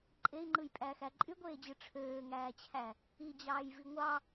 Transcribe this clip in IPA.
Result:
ǃʼ e i̯ ŋ͡ǃ ɯ j pʼ æː x æ ǃʼ y ɡʷ eː d͡ʑ ɯ ʈ͡ʂʰ øː ŋ æː t͡ɕʰ æ | i d͡ʑ ɑː j v i ŋʷ ɑ

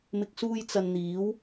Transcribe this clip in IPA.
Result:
m ɪ˨ k̚ s uː˧ j t͡s ɐ˨ n n̪ iː˨˥ w

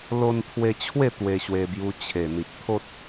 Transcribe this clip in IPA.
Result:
l o˧ n pʰ w e˧ t͡ɕʰ w e˥˧ t̪ w e˧ ɕ w e˧ b j u˧ t͡ɕʰ e˨˩ n̪ i˨ p̚ t̪ʰ o˦ t̚

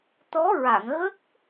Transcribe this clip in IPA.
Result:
t̪ ɔ˧˥ ɹ a˨˩˨ ŋ ɣ ə˦˥ k̚

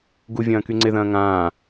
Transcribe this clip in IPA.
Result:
ɡ u vʲ ɐ̃ː k y ŋ͡ǀ ɪ ð ɐ̃ː ŋ ãː

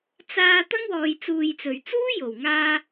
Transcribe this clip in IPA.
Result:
t͡s aː˧ t̪ ɐ˥ ŋ w ɔː˨ j t͡s uː˨ j t͡s ɵ˨˩ ɥ t͡s uː˥ j o˨˩ w ŋ aː˧

